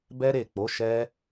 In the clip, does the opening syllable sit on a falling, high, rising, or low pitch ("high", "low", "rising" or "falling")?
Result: high